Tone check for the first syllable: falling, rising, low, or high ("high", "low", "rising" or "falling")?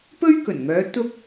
high